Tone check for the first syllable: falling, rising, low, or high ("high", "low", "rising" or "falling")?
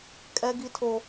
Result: high